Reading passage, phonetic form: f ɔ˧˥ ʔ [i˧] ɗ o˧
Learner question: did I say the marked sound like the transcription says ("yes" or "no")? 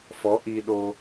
yes